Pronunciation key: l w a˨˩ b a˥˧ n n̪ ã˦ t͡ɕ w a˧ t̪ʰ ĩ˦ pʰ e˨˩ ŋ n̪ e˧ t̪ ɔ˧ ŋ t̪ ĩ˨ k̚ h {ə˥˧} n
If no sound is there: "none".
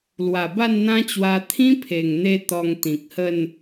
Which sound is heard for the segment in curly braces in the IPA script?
ə˥˧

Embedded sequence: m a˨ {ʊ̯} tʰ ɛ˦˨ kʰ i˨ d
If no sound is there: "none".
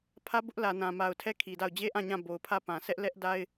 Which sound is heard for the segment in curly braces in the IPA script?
ʊ̯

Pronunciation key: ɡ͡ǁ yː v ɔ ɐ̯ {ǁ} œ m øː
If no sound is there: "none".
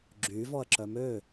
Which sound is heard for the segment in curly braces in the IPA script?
ǁ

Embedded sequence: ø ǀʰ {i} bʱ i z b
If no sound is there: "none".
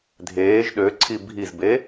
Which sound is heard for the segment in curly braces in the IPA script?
i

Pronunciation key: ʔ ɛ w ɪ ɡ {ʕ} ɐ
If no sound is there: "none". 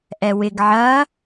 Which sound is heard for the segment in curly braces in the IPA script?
ʕ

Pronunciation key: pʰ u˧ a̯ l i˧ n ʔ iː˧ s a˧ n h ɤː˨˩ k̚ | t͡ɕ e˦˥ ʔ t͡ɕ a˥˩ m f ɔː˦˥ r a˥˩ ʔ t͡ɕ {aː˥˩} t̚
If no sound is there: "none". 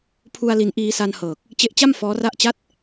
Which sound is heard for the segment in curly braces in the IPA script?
a˥˩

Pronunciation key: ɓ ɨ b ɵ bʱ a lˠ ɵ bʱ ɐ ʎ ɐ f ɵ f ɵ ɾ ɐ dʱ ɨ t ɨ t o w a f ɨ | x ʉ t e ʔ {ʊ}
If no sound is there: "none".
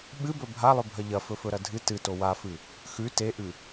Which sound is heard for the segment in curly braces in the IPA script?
ʉ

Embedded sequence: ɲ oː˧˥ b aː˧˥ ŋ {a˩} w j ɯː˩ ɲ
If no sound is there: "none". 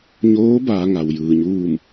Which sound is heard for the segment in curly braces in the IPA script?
a˩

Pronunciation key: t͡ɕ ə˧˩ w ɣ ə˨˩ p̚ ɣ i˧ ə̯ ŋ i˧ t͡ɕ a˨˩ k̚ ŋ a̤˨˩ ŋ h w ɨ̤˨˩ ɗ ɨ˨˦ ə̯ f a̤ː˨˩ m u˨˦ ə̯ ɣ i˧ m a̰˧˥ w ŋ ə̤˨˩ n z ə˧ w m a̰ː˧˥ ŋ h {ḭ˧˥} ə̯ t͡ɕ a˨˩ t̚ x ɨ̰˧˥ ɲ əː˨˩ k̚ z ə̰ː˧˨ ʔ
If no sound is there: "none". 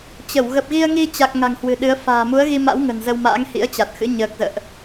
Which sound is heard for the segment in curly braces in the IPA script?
ḭ˧˥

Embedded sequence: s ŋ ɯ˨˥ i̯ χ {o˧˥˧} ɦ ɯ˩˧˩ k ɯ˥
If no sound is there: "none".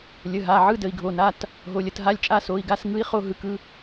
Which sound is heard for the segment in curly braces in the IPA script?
o˧˥˧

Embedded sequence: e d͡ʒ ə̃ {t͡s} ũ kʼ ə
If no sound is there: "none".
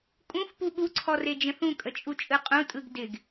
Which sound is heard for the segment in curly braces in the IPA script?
θ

